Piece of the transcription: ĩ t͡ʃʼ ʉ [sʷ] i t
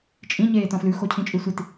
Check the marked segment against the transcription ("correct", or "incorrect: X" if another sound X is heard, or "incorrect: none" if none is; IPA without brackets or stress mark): correct